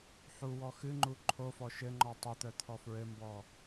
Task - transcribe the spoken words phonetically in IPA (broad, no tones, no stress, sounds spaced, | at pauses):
ħ u w ɔ x ɨ ŋ͡ǃ u ǃʰ o f ɔ ʃ ɘ ŋ͡ǃ ɔ tˤ ɘ t̪ œ t̪ʰ ɔ f ɹ ɘ m b ɔ